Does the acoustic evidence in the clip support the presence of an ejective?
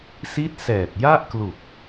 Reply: no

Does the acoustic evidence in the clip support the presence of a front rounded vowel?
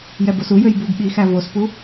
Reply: yes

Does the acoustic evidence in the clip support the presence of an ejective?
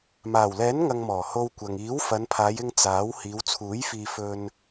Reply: no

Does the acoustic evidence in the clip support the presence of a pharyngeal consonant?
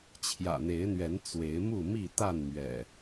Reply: no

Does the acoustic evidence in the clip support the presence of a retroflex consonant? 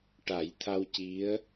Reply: yes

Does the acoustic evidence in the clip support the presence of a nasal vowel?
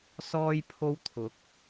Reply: no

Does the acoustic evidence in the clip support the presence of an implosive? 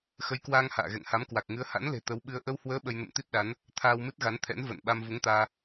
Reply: yes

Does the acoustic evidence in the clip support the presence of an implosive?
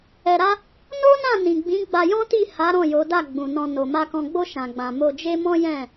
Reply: no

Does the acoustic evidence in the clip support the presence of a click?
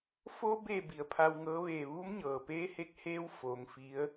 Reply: no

